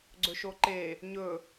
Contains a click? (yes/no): yes